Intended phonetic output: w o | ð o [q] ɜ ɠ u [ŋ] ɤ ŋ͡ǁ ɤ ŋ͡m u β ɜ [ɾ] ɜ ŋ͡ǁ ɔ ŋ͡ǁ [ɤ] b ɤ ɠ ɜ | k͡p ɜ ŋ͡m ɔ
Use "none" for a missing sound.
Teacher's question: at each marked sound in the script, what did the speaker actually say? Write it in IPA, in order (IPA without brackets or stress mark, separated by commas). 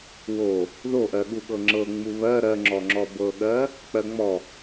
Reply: ʔ, ɠ, ɾ, ɔ